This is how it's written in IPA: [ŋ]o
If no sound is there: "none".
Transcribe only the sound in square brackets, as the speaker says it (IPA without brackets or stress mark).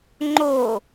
ŋ͡ǃ